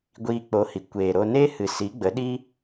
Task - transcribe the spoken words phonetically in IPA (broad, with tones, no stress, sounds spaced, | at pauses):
ɡʷ iː˧ k͡p o˨˦ h i˨ kʷ eː˨ ɾ o˧ n e˧ h ɨ˨ s i˨˦ ɡ͡b ə˨˦ ɗ i˦